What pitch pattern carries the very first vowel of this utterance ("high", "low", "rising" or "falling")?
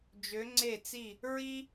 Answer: rising